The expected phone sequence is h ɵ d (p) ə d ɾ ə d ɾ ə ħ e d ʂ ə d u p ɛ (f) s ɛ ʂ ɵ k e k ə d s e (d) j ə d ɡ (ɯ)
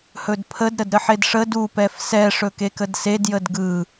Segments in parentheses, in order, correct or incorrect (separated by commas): incorrect, correct, correct, correct